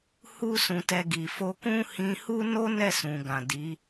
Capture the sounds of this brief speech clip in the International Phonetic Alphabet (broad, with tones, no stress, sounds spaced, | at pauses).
h u˦ s ũ˧ t ɛ˧ ɡ i˨ f o˧ k ũ˦ h ĩ˧ h u˦ n o˦ n ɛ˦˨ s ũ˨ ɡ ã˨ d i˨˦